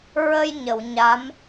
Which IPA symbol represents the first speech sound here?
ɹ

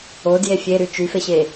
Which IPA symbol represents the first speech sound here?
o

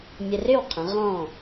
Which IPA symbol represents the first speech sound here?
mʲ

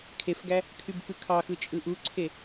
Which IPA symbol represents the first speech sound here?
kʰ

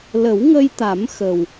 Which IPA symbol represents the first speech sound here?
l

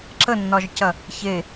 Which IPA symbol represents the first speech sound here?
ǁ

